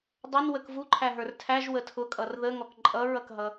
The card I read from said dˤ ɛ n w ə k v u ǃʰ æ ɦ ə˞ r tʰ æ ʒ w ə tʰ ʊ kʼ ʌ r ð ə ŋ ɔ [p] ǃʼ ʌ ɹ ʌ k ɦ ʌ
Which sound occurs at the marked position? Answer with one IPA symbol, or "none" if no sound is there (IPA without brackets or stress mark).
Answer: k